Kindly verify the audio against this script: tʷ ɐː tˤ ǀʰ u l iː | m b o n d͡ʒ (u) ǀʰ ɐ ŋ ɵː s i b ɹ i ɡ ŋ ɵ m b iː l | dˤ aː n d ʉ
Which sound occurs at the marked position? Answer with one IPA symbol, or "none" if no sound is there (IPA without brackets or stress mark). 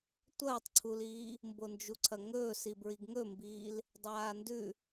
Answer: u